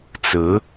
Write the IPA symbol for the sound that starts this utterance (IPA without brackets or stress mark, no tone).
t͡s